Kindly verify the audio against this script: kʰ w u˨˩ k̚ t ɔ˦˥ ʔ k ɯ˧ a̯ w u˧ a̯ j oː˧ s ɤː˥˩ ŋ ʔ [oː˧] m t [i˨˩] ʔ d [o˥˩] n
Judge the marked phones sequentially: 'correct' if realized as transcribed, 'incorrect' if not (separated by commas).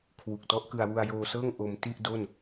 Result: incorrect, incorrect, correct